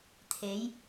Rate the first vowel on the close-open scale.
mid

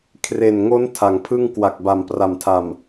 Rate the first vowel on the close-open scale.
mid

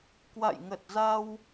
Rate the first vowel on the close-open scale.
open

